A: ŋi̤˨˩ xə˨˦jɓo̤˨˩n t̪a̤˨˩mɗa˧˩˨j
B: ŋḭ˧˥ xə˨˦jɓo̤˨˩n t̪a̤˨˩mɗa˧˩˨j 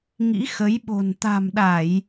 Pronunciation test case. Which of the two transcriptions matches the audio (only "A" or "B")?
B